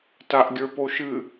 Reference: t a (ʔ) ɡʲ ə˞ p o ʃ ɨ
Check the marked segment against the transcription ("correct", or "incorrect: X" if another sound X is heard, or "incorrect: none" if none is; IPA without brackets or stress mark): correct